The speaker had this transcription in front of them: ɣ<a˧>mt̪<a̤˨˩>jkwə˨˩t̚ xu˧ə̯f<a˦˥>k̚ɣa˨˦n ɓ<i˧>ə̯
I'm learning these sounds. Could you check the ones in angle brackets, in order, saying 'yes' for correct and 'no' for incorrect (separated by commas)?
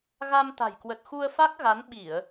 yes, yes, yes, no